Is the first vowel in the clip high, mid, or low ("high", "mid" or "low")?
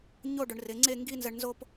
mid